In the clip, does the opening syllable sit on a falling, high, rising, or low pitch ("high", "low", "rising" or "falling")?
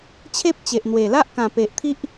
high